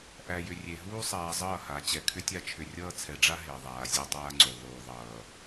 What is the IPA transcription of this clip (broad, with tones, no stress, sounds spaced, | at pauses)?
ʔ æ˨ j ʏ˨ rʲ e˨ ɦ uː˦ sˤ aː˨ zˤ ʌː˦˨ h a˨˦ t͡ɕ ɛ˨ kʰ ʏ˦ tʲ a˦ t͡ʃʰ ʏ˨ rʲ ʌː˦ t͡sʰ ɛ˨ ɖ͡ʐ a˦ ɦ e˨ ðˤ aː˨ zʲ e˦ dˤ aː˦ ŋ͡ǀ u˨ ðˤ uː˨ ðˤ ʌː˨